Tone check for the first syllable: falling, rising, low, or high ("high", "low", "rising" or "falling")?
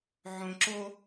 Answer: low